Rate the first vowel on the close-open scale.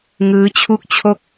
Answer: close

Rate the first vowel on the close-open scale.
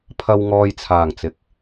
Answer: open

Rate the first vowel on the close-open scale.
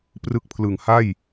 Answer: close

